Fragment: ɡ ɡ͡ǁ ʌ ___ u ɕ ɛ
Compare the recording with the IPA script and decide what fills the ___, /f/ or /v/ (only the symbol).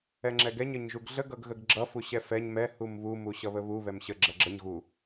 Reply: f